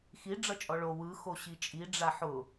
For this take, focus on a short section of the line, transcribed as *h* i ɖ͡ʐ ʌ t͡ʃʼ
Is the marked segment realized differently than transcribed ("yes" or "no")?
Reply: yes